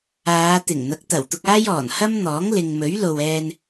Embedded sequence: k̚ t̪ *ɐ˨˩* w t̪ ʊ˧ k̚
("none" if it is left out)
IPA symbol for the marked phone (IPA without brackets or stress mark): ɐ˨˩